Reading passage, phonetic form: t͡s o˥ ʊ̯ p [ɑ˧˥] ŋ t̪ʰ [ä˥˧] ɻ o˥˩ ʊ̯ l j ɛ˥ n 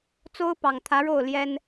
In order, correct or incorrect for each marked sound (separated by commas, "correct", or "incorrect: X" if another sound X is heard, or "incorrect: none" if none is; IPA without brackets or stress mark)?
incorrect: ɑ˨˩, incorrect: ä˧˥